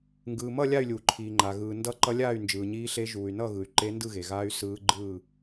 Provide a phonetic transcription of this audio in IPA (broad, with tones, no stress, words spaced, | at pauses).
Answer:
ŋɡɯː˩mʌ˥˨ lʲa˥˨y̯lʲuː˩ǃʰiː˩ŋ͡ǃa˩ ɣɯː˩ndʌ˧˥ ǃʌ˧˥lʲaː˥˨y̯ nd͡ʒɯː˩ɲiː˧˥ɬe˧˥ ʒuː˩y̯nʌ˥˨ɣɯ˩y̯ ǃe˧˥ndɯ˥˨ɣe˩ɣaː˧˥y̯ sɯː˧˥ ɡ͡ǃɯː˥˨